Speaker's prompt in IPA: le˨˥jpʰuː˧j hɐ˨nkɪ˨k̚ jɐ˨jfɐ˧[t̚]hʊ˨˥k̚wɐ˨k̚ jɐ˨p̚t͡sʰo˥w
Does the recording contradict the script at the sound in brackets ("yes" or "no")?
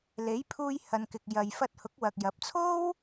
no